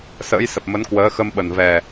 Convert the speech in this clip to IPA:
s ə̰ː˧˥ j s ə˨˩ p̚ m ə˨˦ n k w əː˨˦ x ə˧ m ɓ ə˨˩ n v ɛ˨˩

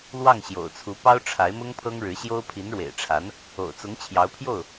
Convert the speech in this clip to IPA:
l w ɑ˥˩ ŋ ɕ j o̰˨˩ ʊ̯ t͡sʰ u˧˥ p ɑ˥ ʊ̯ ʈ͡ʂʰ a˧˥ ɪ̯ m ʊ˥ ŋ pʰ ɤ˥ ŋ ɻ ɻ̩˧˥ ɕ j o˥ ʊ̯ pʰ i˧˥ n ɻ w ḛ˨˩ ɪ̯ ʈ͡ʂʰ a˧˥ n | o̰˨˩ ʊ̯ t͡s ʊ˧˥ ŋ t͡ɕʰ j ɑ˧˥ ʊ̯ pʰ j o˥˩ ʊ̯

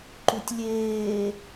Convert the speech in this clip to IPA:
ǃ u tʲ lʲ eː

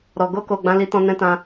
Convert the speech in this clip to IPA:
ɾ ɔ˨ ɡ o˧ k o˨ ɡ͡b ã˧ l i˧ t ɔ̃˧ n ɛ̃˦ t ã˦

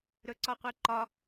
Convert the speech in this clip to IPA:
ɾ ɵ ǀ ɒ qʷ e ǃ ɒ

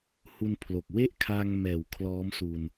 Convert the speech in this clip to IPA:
h u˧ n pʰ l o˨˩ k̚ w e˥˩ ʔ kʰ aː˧ ŋ m ɛː˩˦ w kʰ l ɔː˦˥ m s u˧ n

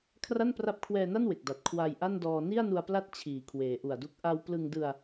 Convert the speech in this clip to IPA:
kʰ r a˥˩ n p r a˦˥ p̚ kʰ w ɛː˧ n a˥˩ n w e˨˩ k̚ d a˨˩ t̚ kʰ w a˧ j ʔ a˥˩ n d ɔː˧ n i˥˩ a̯ n u˧ a̯ p l a˦˥ t̚ t͡ɕʰ iː˩˦ kʰ w eː˩˦ ʔ u˨˩ a̯ d u˦˥ k̚ ʔ a˧ w p l ɯ˧ ŋ d ɯ˧ a̯

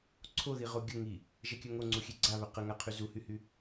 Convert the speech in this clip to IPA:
ǀʰ o ð i ʁ o ɡʲ ə ŋ i | ʒ ɛ kʲ œ ŋ o ŋ͡ǀ u xʲ e ɡ͡ǀ a β œ q ə ŋ a qʰ y z u h y h y

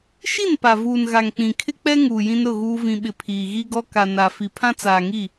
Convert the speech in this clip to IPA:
ʃ i˦˨ n p a˨ v uː˨ n ɣ a˨ ŋ k͡p ĩ˨ kʰ ɪ˦ k͡p ɛ˦ ŋ uː˨ j ĩ˦ n ɾ ʊ˦˨ ɣ uː˦ v ĩ˨ ɓ ɪ˨ pʰ iː˨ ɣ i˦ ɡ ɔ˦ k a˨ n a˨ f i˨ pʰ ã˦ t͡s aː˨ ŋ i˦˨

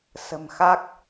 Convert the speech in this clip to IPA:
s ə̤˨˩ m x a˦˥ k̚

